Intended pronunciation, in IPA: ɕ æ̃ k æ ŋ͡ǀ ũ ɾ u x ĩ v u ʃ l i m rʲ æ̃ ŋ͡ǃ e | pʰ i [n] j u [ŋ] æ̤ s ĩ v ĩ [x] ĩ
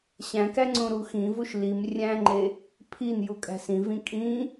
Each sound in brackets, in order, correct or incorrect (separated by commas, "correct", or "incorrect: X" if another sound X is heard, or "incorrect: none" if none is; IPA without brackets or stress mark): correct, incorrect: kʼ, incorrect: kʼ